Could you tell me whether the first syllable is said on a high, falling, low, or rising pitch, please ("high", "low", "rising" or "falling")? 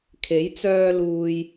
rising